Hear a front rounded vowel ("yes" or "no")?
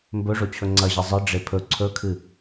no